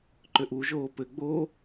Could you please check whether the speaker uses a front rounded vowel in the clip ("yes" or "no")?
yes